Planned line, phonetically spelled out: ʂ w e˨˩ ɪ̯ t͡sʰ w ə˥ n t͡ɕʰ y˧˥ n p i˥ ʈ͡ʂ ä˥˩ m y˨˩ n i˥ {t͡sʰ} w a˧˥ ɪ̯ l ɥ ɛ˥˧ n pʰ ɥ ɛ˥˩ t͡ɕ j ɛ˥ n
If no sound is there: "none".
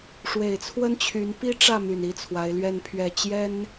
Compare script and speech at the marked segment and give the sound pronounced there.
t͡sʰ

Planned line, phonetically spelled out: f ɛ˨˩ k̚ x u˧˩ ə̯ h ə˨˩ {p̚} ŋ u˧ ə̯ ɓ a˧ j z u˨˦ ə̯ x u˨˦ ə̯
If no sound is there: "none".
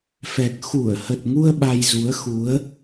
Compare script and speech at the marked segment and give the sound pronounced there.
t̚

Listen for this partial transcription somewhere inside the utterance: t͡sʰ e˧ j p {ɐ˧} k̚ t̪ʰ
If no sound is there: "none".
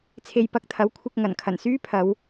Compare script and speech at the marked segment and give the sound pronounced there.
ɐ˧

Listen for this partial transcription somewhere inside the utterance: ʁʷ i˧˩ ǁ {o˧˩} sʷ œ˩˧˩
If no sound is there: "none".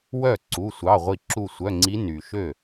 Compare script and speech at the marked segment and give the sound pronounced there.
u˧˩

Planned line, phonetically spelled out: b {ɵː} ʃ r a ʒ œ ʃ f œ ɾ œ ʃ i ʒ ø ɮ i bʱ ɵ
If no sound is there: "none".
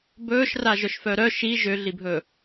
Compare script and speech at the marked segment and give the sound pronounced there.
ɵː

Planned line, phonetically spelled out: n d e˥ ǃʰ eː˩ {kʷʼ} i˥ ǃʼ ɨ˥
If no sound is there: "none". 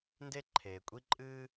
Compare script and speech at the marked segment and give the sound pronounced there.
kʷʼ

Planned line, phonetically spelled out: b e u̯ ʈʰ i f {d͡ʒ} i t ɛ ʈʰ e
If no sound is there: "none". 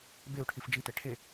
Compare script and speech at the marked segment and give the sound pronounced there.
d͡ʒ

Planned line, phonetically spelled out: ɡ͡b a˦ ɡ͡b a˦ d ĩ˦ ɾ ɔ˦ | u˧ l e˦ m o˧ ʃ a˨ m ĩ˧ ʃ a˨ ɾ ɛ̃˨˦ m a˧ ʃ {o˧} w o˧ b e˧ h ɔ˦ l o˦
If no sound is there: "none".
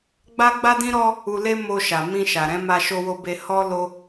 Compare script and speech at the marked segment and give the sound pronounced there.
o˧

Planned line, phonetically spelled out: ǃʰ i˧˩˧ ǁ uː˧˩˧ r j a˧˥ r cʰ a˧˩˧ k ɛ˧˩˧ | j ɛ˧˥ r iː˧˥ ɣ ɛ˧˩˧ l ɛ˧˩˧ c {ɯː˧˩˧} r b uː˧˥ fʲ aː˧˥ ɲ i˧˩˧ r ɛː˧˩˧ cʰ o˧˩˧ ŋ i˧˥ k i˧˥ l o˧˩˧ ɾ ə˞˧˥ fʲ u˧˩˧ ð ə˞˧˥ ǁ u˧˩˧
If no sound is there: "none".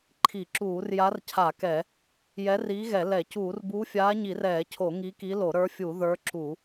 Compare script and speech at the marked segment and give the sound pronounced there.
uː˧˩˧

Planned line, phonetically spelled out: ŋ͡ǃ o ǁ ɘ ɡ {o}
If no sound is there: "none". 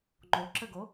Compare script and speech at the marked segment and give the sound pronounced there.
o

